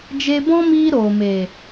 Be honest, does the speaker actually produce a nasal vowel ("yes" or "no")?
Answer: yes